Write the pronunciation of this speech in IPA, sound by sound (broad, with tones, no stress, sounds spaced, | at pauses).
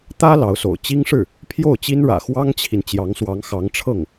t̪ ä˥ l ɑ˧˥ ʊ̯ s o̰˨˩ ʊ̯ t͡ɕ i˥ ŋ ʂ ɻ̩˥˩ | pʰ j o˥˩ ʊ̯ t͡ɕ i˥ n ɻ ä̰˨˩ x w ɑ˥ ŋ t͡ɕʰ i˨ n t͡ɕ j ɑ˧˥ ŋ s w ɑ˧˥ ŋ x ɑ˧˥ ŋ ʈ͡ʂʰ ɤ˥˩ ŋ